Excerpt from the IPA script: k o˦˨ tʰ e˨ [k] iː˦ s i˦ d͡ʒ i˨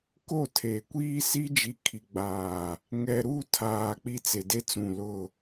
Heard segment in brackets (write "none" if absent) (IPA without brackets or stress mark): kʷ